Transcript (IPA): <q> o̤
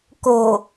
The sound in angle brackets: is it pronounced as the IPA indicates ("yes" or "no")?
no